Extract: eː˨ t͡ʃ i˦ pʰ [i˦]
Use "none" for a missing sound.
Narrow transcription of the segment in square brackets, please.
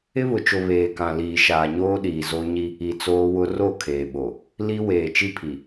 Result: i˨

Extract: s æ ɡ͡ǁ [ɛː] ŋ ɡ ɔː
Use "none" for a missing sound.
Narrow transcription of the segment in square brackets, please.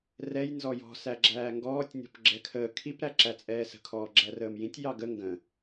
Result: æː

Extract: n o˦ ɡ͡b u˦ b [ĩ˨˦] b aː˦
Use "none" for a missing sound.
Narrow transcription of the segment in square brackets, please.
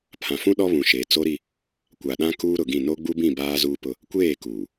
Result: ĩ˦˨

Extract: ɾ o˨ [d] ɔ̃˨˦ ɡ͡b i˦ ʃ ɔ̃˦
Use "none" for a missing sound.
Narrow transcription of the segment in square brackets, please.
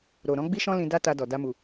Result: ɾ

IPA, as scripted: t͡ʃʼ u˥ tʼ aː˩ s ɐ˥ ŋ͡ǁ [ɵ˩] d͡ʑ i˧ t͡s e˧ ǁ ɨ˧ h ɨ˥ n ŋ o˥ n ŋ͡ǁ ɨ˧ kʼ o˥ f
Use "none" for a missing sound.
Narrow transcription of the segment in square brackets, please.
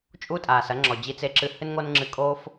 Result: ɔ˩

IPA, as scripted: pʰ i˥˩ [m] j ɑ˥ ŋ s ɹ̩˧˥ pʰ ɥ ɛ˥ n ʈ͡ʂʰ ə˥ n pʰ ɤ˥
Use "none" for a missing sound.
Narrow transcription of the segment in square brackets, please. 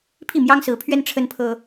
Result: m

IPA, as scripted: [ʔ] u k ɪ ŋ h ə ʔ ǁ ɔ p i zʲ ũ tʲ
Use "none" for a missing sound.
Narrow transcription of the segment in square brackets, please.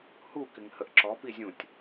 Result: h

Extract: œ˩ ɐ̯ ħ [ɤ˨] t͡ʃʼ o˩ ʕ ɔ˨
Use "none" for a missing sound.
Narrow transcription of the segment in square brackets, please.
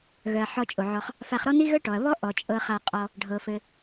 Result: ɔ˨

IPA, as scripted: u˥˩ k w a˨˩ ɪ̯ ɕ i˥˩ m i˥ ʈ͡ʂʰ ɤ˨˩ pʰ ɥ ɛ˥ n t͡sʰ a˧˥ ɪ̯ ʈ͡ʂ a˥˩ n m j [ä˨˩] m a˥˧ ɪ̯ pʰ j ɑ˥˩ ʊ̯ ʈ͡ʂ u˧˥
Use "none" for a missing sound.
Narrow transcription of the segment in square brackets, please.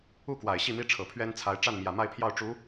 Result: ä˨˩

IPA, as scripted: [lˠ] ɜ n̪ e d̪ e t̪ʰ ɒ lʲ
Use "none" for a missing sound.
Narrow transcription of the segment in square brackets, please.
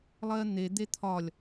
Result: lˠ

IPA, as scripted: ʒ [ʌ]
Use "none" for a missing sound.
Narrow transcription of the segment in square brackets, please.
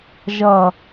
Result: ʌ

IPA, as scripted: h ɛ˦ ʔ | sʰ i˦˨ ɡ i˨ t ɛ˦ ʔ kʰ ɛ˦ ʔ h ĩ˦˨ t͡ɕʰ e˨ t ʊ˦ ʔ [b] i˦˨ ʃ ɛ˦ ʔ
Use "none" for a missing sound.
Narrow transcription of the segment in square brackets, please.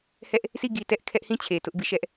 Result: b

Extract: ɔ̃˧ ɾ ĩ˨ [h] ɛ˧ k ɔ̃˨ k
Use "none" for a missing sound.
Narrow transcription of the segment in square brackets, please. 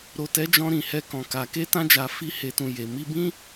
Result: h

